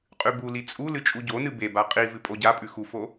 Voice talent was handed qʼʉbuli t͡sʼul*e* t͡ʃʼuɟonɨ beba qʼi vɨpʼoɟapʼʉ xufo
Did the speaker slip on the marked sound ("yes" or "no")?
yes